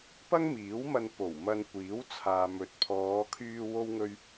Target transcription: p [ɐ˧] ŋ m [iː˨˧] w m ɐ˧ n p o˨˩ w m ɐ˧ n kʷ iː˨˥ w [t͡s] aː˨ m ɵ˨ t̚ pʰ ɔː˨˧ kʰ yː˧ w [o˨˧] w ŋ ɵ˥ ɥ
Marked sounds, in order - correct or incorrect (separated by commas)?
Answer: incorrect, incorrect, incorrect, incorrect